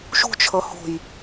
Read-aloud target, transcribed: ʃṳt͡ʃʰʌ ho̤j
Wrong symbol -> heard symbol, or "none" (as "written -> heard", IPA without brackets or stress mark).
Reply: none